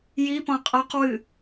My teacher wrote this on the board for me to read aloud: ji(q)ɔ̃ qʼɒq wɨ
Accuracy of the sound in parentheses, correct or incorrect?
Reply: incorrect: p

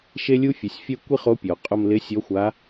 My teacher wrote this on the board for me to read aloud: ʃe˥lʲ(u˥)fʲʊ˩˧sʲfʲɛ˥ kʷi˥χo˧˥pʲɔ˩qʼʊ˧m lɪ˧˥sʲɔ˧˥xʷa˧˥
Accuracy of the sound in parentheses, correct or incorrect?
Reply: correct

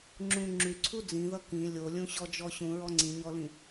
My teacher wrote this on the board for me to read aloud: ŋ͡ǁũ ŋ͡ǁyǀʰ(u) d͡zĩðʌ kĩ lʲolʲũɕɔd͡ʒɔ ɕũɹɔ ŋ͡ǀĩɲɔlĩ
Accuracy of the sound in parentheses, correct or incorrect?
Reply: correct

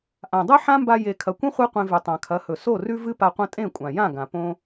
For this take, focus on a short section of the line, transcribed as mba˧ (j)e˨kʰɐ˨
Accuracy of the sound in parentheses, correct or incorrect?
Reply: correct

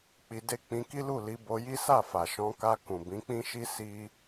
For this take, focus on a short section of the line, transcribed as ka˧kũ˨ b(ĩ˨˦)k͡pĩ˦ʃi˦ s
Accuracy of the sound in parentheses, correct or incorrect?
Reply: correct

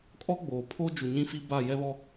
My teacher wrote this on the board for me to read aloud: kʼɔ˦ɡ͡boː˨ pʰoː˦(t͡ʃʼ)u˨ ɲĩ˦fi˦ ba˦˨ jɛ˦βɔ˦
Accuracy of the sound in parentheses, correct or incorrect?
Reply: incorrect: d͡ʒ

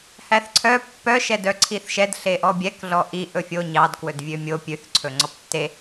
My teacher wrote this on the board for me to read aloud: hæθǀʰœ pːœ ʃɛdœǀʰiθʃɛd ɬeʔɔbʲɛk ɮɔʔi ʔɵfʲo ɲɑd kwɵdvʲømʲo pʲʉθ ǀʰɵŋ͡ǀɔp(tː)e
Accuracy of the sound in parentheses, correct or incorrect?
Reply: correct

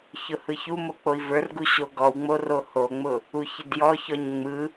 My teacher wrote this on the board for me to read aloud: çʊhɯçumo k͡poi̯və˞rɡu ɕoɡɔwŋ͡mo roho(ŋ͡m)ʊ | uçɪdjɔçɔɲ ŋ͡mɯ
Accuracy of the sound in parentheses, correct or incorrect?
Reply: correct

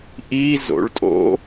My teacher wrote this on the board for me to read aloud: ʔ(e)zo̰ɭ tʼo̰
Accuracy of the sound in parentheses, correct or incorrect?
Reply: incorrect: i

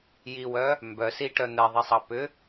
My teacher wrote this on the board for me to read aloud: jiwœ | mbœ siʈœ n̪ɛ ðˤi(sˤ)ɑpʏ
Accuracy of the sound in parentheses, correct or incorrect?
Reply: correct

